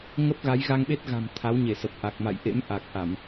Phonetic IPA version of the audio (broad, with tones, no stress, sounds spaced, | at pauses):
ŋ ə˦˥ p̚ ɣ a˨˦ j ɣ a˧ ŋ ɓ e˦˥ t̚ ɣ a̤˨˩ m t̪ʰ a˨˦ w ɲ e˧˩ s ə˨˩ p̚ ʔ a˨˩ k̚ m a̰˧˨ j ʔ ḛ˧˥ m ʔ a˨˩ k̚ ʔ a˧˩˨ m